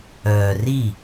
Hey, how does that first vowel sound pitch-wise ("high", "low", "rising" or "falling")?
low